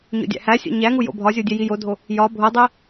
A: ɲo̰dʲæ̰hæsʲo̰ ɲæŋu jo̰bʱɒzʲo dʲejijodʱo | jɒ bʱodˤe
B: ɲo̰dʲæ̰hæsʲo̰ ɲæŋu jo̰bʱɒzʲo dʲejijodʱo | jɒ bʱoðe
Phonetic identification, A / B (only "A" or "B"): A